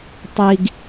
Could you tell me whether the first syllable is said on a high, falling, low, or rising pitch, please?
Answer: high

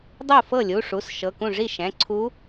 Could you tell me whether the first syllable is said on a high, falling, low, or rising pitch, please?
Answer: falling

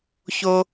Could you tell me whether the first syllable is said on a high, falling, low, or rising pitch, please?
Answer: high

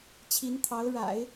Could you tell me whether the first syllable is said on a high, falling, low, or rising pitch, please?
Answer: rising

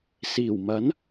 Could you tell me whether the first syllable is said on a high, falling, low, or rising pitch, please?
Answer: low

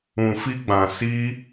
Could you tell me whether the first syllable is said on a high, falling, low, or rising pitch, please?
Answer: low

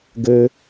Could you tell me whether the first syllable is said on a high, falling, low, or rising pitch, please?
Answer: high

